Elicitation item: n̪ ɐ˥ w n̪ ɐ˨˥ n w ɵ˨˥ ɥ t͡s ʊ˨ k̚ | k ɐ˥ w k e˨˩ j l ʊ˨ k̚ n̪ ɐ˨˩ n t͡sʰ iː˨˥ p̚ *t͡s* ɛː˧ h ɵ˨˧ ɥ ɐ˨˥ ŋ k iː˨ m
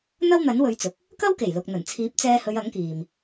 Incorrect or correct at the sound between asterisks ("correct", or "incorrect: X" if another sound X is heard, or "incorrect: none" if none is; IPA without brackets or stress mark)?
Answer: correct